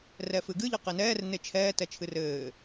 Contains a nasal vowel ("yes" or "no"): no